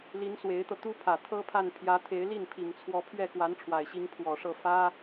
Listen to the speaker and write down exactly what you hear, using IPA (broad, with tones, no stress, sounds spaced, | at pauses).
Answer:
l i˧˥ n s w e˧˥ ɪ̯ t̪ ɤ˧ t̪ u˥ pʰ ä˨˩ t̪ʰ ɤ˥ pʰ a˥˩ n pʰ j ä˧˥ t̪ʰ e˧˥ ɪ̯ l i˥˩ n pʰ i˨˩ ŋ t͡sʰ w ɔ˧˥ pʰ ɥ ɛ˥˩ k w a˧˥ n ʈ͡ʂʰ w a˨˩ ɪ̯ ɕ i˧˥ ŋ pʰ w ɔ˨˩ ʂ ɤ˥˩ f ä˥